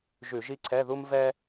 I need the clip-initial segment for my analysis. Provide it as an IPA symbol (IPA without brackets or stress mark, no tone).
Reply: ʒ